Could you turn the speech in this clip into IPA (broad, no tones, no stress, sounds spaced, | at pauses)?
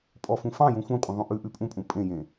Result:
pʼ ɔ f ũ f ɑ̃ j ũ xʷ ɑ̃ kʷʼ ə̃ ðˤ ũ ʔ ʉ ʔ ʉ pʼ ũ pʼ ũ pʼ ẽ j ẽ